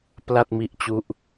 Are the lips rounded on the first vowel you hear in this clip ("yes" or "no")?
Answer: no